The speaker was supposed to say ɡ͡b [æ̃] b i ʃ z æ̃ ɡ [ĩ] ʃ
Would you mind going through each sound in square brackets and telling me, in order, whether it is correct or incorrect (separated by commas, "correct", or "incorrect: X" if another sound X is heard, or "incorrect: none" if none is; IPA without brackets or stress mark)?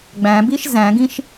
correct, correct